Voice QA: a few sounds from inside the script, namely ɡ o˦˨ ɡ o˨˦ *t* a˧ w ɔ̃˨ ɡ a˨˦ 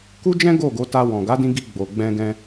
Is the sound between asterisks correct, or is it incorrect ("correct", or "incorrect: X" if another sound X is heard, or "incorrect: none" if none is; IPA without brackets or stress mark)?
correct